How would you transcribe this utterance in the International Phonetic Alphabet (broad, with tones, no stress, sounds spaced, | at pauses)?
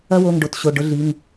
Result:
ɐ˦ w o˩˧˩ ŋ ɖ o˩˧˩ t ɕ o˩˧˩ ɖ ʊ˦ ɮ i˩˧˩ ŋ